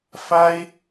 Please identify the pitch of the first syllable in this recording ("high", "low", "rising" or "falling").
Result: high